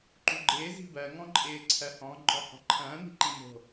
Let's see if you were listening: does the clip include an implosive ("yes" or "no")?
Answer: no